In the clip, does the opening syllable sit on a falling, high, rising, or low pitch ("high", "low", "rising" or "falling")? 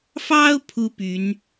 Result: high